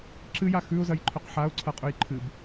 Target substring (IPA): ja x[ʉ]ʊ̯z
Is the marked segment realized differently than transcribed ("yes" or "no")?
no